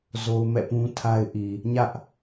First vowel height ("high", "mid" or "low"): mid